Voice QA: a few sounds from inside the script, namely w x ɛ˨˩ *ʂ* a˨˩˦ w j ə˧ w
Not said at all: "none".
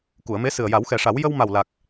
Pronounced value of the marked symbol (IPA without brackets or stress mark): ʂ